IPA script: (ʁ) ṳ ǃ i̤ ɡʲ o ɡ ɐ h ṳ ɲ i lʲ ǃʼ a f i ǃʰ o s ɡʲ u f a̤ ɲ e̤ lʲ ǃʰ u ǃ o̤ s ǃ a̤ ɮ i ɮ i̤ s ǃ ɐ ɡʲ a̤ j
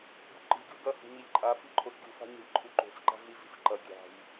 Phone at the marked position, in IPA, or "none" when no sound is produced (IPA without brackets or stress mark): ɡ